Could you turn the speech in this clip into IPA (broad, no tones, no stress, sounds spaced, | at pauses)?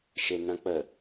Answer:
ʃ e n ɐ̃ k͡p ə